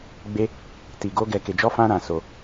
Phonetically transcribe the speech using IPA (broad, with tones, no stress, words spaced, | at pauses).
ɡ͡be˦ | ti˧ɡo˦ ɡɛ˧ke˧d͡ʒɔ˦ fã˦ɾã˧so˧